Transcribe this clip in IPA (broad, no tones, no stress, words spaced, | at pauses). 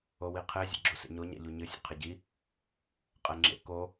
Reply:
owiqʰe zʲḛɡ͡ǁusḛɲo ɲa̰ʎuɲɨ sʲa̰qʰeɟi | qʼɛŋ͡ǁḛ ko